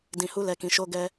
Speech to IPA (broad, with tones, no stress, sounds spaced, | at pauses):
d ĩ˨ h u˧ l ɛ˨ k ĩ˨ ʃ o˧ ɡ ɛ˧